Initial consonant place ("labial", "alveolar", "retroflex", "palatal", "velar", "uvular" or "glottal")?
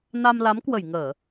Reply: alveolar